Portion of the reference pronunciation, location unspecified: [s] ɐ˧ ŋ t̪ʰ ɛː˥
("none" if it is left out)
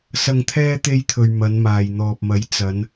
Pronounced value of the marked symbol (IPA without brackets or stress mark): s